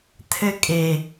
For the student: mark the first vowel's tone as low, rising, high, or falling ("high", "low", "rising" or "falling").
high